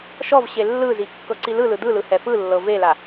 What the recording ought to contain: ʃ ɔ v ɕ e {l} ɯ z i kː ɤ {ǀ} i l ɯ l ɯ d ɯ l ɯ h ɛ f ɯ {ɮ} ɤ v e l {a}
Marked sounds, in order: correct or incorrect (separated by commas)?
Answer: incorrect, correct, incorrect, correct